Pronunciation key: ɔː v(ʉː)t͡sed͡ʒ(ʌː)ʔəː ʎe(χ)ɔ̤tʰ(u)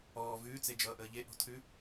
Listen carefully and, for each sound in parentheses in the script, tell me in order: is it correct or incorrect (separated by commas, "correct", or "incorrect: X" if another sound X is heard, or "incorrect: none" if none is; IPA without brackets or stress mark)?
correct, correct, incorrect: ʔ, incorrect: ʉ